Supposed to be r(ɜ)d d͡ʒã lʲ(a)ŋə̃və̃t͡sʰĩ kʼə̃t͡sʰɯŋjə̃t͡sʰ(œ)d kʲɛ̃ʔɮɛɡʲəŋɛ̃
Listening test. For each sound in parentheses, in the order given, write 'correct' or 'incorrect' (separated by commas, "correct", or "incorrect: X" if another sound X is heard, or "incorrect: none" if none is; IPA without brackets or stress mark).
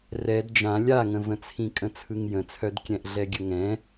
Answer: incorrect: ɛ, correct, correct